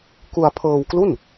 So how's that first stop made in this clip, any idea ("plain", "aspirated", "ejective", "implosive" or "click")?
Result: plain